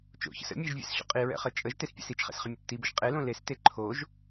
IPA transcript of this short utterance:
t͡ʃ o̰ ç ə̰ s ə̰ mʲ e ʒ vʲ ɛ̰ s ɕ o̰ qʼ i ɹ ɛ̰ χ ə t͡ʃʼ ə ʒ t e s pʲ ɛ̰ s i t͡ʃ χ ɛ̰ s χ ə mʲ ə t͡ʃ t i b ə ʒ qʼ e l õ l e s t e ǃʰ o ʒ

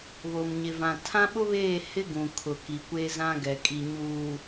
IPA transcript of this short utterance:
β o˨ m ɲ ɪ˨ v ã˨ tʰ ã˦ ɓ ʊ˦ β eː˦˨ h ɪ˦ ɡ ũ˨ kʰ ʊ˨ k i˨ kʷ e˦ z ã˦ ɡ ɛ˨ kʼ i˨ ɲ uː˨

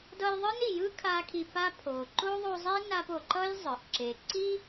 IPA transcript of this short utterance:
d ʌ˦ j ðˤ ɯ˥ n i˨ j ɯ˥ kʰ a˥ kʰ i˦ p a˥ pʰ o˨ ǃ o˥ ðˤ o˦ zˤ e˥ n a˦ p o˨ ǃ ʌ˥ j zˤ ɯ˩ ʔ ǁ e˨ ǀ i˥

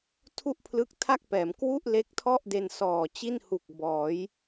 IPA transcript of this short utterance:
tʰ u˥˩ ʔ pʰ l ɯ˦˥ k̚ tʰ a˥˩ k̚ p ɛː˩˦ m k w u˥˩ ʔ l e˦˥ k̚ tʰ ɔ˥˩ ʔ d e˧ n s ɔː˨˩ t͡ɕ i˥˩ n h u˨˩ k̚ b ɔː˩˦ j

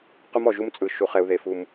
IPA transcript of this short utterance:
q u˦ m ɔ˨ ʒ u˦ m t͡sʼ ɯ˨ ʃ u˨ χ ɛ˨ u̯ ð e˨ f u˨ m

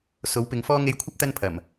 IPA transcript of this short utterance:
s o˨˥ w p ɪ˨˧ ŋ f ɔː˥ ŋ e˧ j kʷʰ ɐ˥ p̚ t̪ ɐ˥ n pʰ ɐ˨˩ m

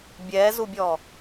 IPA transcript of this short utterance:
bʲ ɛː z u bʲ ɔː

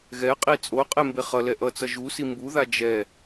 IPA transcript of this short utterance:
ɣ ɛ qʼ i t͡sʼ o qʼ e m b e χ ʌ l ɛ ʔ ʌ t͡s ʌ ʒ u s i m b u ð a d͡ʒ ɛ

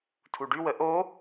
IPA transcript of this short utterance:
tʰ u ɖ y w ə ʔ o

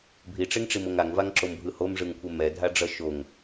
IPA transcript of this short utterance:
bʱ i ʈ͡ʂ e ŋ ʈ͡ʂ i m o ŋ a ŋ v a ŋ ǁ o m bʱ ɯ h o m ʐ ɯ ŋ kʷʰ ɛ m ɛ dʱ a ɖ͡ʐ ʌ ʃ o ŋ

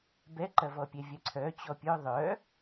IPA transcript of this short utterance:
b ɛ ǃ ɐ v ɔ pʲ ɛ vʲ ɐ ǀʰ œ t͡ɕ ɔ pʲ œ ðˤ œ

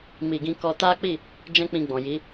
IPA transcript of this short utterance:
m i˧ ɡ ĩ˦ k ɔ˦ t a˦ k͡p i˦˨ | d͡ʒ ɛ̃˦ k͡p ĩ˧ ɡ͡b ɔ̃˨ j i˨˦

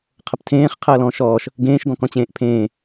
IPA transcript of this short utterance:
qʰ ə p tʰ ẽː χ qʰ əː l ɔ̃ ʃ ɔː ʃ | ɡ ẽː ʃ ɡ ɔ̃ k ɔ̃ t͡ɕ ẽː ʔ pʰ ẽː

